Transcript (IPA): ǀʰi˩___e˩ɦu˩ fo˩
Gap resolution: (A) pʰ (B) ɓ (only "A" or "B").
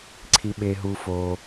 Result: B